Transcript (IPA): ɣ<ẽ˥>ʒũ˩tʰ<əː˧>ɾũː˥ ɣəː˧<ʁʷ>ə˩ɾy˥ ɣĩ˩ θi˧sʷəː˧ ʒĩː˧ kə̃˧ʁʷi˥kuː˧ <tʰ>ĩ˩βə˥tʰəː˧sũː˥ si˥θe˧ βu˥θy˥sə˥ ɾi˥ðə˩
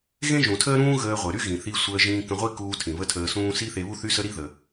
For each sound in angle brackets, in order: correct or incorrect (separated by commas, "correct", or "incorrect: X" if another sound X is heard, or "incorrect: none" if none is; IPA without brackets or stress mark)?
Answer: correct, incorrect: əː˥, correct, correct